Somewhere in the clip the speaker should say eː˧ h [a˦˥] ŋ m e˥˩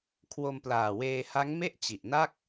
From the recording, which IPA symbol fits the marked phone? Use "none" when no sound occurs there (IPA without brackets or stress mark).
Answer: a˦˥